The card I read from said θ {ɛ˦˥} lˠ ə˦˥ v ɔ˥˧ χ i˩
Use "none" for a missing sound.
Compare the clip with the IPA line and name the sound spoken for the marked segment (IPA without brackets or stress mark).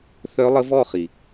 œ˦˥